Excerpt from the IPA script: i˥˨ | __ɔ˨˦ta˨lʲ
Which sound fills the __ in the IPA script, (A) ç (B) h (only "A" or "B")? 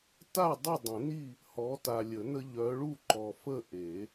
B